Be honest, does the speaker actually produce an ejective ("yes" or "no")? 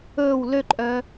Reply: yes